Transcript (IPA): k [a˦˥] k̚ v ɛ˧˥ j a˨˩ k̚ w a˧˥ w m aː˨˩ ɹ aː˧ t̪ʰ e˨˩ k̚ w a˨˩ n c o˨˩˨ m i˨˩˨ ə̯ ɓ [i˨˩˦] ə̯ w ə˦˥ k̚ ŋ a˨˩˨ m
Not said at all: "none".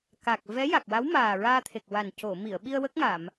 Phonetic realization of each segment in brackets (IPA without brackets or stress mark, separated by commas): a˨˩, i˧